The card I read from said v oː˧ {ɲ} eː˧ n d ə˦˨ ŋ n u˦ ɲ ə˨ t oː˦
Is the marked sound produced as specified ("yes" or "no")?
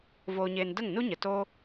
yes